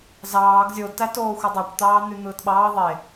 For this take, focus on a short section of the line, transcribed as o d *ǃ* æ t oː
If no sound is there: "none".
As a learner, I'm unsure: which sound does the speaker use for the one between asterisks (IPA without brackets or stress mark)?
t